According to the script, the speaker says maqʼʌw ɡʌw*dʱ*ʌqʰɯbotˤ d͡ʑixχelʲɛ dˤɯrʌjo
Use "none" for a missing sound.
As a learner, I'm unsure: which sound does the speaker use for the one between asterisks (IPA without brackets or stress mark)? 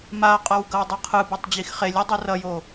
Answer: dˤ